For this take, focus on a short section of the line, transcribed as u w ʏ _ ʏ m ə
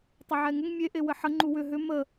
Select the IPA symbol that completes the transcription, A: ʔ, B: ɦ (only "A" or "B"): B